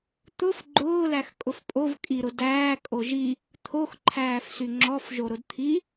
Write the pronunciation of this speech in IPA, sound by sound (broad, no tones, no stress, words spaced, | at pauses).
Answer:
t̪ʊf ɡ͡ǃʊːlæx kʼʊfpʼov kʼiɾʊ dæː kʼoʒi | t̪ʰoxǃʰæːfsy ŋ͡ǁɔfʒo ɾʊdt̪ʰi